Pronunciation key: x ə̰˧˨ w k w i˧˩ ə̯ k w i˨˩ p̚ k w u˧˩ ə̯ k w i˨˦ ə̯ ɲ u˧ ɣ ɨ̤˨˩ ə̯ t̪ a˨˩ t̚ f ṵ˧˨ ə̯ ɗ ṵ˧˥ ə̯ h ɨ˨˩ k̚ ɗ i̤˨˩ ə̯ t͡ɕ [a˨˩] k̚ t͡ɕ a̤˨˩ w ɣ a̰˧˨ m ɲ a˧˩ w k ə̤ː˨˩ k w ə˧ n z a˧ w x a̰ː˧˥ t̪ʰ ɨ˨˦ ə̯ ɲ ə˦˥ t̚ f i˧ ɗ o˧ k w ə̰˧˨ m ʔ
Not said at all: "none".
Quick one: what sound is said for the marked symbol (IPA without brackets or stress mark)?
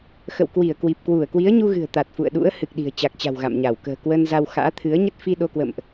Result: a˨˩